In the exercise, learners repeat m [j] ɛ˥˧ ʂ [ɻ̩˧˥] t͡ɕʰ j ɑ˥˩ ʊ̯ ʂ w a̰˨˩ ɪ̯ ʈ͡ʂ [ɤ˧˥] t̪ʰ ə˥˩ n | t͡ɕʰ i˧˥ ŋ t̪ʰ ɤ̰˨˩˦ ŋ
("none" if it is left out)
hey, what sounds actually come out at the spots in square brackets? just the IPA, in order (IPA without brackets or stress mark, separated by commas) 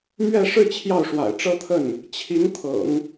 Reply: ɥ, ɻ̩˥˧, ɤ˥